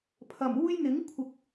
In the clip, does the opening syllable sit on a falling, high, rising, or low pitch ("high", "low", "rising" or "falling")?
low